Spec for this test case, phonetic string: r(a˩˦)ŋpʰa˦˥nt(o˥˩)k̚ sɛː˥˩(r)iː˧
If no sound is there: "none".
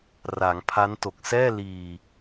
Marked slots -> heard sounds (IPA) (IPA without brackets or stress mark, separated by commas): a˩˦, o˨˩, l